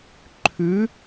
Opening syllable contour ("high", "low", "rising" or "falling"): rising